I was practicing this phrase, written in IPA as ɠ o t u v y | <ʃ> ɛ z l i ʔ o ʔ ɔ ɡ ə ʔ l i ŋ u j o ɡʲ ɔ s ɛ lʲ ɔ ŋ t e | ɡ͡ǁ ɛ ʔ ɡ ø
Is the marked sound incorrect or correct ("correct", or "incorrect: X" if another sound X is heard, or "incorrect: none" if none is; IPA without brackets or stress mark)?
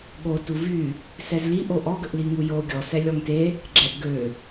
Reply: incorrect: s